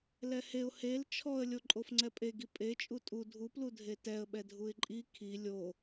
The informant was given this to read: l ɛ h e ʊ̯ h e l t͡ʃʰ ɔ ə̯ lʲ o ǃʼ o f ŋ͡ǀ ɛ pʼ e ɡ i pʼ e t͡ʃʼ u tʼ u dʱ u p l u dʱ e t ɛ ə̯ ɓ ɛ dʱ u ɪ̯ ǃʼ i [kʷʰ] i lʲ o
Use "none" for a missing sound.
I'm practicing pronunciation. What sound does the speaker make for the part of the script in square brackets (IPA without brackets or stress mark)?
kʰ